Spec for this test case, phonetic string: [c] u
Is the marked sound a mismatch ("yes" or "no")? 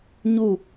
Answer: yes